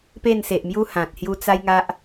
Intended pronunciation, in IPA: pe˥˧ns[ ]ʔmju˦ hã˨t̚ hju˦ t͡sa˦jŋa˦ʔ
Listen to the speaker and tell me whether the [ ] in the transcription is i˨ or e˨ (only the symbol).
e˨